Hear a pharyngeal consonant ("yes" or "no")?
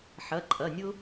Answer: yes